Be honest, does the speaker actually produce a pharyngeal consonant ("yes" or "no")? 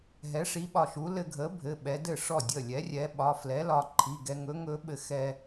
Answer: no